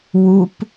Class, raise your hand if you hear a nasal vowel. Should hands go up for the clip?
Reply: no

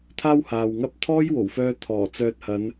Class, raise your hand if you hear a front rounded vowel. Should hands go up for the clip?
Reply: yes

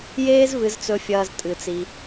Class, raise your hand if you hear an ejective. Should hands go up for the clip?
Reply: yes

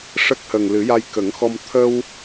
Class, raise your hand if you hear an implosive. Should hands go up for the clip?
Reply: no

